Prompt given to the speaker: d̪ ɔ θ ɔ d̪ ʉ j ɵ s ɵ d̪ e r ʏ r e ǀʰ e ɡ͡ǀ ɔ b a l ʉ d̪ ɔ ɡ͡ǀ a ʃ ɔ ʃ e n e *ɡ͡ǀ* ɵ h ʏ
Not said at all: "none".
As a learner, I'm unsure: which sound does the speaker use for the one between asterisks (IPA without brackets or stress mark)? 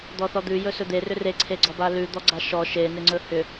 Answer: ŋ͡ǀ